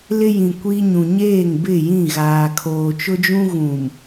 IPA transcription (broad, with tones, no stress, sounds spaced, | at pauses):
l ɪ˦ j ĩ˨ kʷ i˦ ɲ ũ˨ ɲ eː˦˨ ŋ b ɪ˦˨ j ĩ˦˨ ɣ aː˨ kʰ oː˨ t͡ʃ ʊ˦ d͡ʒ ũ˦ ɣ ũ˨ m